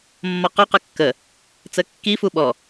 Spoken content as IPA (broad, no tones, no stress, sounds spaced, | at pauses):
mː ɒ q ɔ q ə kː ə | t͡s ə kː i f u ɓ ɔ